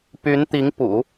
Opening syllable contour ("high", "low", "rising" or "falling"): rising